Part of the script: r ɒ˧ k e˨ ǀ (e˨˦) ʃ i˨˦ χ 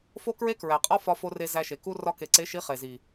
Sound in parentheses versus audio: correct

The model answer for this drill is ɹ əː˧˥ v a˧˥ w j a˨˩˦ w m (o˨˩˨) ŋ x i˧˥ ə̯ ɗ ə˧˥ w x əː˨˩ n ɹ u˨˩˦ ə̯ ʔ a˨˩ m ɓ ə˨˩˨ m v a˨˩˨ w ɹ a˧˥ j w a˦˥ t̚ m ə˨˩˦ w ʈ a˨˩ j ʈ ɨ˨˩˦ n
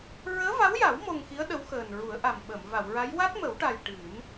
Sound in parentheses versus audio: incorrect: o˧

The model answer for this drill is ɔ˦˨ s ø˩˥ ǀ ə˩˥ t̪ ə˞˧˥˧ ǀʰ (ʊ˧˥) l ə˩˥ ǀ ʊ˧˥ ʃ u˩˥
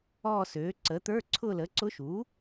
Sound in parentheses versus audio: incorrect: ʊ˦˨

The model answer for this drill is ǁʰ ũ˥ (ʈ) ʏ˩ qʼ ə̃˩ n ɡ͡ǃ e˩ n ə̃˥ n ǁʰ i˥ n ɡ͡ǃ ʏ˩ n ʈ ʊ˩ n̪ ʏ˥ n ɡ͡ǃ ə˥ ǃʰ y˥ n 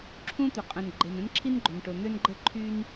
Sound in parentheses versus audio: incorrect: t̪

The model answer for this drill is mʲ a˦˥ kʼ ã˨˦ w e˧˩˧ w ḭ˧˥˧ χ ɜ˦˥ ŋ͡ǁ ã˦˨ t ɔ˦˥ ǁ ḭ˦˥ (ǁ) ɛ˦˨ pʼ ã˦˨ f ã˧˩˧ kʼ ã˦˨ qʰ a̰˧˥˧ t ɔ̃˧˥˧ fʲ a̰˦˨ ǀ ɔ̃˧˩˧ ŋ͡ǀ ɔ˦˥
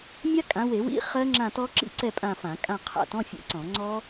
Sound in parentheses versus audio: incorrect: ǀ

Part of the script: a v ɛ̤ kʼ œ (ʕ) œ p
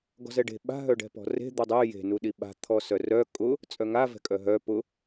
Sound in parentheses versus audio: incorrect: ɦ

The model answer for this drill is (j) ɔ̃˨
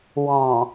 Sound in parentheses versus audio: incorrect: w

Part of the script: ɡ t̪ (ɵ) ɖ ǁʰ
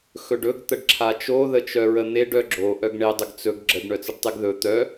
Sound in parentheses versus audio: incorrect: ə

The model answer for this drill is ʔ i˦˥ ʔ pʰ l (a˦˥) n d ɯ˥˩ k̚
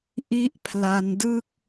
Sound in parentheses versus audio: incorrect: a˧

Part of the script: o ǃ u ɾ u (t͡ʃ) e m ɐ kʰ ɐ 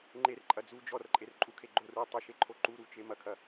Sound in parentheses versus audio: correct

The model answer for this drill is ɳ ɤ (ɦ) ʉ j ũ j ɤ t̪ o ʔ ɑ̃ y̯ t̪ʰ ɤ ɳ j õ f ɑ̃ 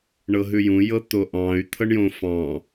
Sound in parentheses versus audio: correct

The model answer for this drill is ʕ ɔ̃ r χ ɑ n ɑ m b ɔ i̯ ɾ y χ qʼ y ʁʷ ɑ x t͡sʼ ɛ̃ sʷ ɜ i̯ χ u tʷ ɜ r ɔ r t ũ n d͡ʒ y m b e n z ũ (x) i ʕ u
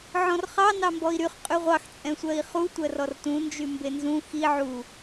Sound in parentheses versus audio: correct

